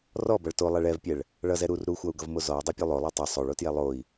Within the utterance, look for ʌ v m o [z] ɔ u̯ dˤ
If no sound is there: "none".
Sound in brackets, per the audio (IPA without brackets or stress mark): z